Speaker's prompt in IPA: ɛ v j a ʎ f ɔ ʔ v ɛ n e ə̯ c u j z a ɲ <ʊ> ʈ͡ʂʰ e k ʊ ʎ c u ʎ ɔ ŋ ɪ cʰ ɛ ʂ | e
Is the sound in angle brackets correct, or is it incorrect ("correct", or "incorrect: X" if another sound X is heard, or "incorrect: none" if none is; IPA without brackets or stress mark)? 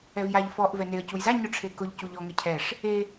correct